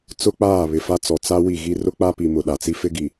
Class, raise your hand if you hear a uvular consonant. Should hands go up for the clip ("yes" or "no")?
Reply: no